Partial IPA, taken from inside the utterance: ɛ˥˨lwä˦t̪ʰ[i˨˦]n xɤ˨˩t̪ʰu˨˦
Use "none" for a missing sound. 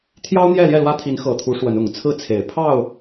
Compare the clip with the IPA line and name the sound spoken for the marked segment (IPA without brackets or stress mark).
i˨˦